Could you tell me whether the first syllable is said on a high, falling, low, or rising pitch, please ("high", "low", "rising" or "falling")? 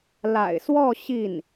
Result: low